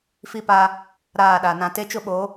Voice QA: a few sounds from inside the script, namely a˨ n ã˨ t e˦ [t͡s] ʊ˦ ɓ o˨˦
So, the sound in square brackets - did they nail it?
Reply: no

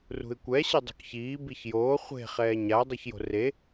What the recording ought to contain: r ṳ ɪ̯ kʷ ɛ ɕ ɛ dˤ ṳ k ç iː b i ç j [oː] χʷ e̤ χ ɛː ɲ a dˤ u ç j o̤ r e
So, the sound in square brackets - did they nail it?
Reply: yes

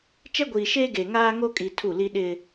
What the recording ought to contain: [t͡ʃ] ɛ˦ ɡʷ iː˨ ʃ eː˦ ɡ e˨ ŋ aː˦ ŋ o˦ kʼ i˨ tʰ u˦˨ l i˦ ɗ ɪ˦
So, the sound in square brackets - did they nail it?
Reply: yes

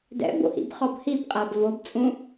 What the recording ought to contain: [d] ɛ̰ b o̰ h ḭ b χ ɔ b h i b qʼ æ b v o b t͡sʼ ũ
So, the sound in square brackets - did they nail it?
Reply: yes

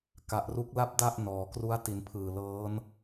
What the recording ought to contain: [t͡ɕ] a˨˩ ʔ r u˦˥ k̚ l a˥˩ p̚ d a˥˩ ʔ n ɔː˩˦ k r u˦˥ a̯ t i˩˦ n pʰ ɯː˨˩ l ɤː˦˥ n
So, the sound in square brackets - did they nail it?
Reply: no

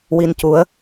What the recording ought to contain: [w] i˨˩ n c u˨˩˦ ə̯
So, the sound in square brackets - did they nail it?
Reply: yes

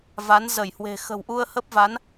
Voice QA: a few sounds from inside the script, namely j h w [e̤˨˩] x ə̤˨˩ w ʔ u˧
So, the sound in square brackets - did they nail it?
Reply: yes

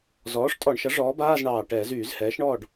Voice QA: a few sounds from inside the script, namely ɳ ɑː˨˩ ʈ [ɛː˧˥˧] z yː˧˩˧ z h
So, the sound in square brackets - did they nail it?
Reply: no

